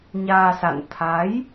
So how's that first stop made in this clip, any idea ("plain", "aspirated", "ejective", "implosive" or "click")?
aspirated